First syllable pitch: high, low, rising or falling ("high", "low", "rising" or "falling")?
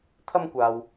high